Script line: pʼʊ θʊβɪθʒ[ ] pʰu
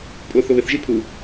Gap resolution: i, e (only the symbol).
i